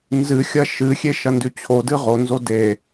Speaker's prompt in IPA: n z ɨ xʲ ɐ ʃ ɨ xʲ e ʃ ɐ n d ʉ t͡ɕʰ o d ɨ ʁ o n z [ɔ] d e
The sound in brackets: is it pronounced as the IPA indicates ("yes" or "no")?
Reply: no